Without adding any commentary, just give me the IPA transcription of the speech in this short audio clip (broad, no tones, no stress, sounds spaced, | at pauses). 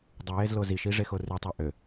dˤ u j e z l o z i ʃ i ʐ e x o r y tˤ ø ʔ ø